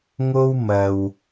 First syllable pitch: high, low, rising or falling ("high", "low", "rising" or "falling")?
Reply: high